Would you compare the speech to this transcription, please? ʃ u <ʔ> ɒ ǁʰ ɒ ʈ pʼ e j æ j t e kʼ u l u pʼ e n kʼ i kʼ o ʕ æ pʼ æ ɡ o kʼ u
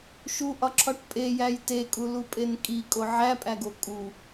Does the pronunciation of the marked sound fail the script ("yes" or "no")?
no